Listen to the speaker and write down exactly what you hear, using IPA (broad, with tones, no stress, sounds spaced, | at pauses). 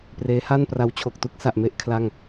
p r eː˦˥ h a˥˩ n p r a˦˥ w t͡ɕʰ o˨˩ k̚ t u˥˩ k̚ s a˨˩ ʔ m e˥˩ ʔ kʰ l a˥˩ ŋ